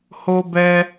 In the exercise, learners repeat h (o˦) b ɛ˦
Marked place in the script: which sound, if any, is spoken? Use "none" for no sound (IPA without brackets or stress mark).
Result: o˦